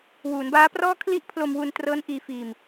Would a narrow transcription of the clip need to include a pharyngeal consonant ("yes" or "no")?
no